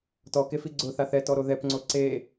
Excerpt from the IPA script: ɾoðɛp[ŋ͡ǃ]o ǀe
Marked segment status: incorrect: ŋ͡ǀ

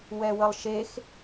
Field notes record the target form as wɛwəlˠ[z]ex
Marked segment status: incorrect: ʃ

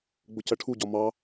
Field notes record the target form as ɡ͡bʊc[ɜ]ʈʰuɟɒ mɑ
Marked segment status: correct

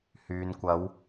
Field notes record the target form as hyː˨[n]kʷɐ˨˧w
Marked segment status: correct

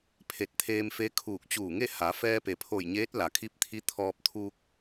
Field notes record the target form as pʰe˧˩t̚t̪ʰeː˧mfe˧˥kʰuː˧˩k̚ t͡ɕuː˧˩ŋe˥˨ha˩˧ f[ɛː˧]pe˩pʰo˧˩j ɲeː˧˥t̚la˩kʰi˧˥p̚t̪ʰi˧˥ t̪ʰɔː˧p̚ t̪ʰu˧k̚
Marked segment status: correct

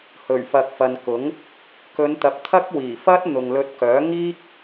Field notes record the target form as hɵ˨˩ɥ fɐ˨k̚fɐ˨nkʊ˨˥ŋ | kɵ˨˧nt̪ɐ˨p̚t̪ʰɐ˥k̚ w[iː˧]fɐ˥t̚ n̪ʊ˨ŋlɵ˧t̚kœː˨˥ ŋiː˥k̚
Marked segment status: incorrect: iː˨˩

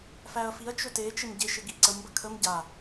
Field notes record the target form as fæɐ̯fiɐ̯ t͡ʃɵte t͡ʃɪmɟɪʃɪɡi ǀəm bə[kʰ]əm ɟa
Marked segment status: correct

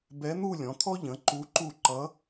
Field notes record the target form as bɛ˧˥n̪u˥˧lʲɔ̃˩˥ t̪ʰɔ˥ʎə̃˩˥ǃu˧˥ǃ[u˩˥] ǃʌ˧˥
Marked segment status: incorrect: u˥˩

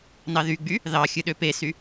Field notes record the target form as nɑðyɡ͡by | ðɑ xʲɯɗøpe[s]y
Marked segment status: correct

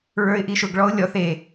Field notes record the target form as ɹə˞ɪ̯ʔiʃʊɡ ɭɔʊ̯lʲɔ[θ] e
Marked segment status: correct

